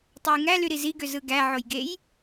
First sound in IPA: tˤ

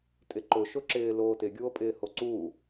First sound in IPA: tʼ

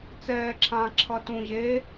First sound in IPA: t͡s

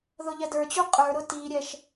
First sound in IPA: ð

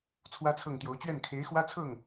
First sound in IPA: t͡sʰ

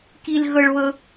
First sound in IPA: k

